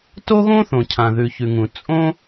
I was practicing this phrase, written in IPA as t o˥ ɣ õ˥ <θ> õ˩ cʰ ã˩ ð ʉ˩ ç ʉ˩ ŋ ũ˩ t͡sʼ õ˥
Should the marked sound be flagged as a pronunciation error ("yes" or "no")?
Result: no